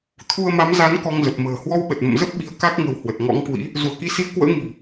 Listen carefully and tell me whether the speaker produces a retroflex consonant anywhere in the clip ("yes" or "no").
no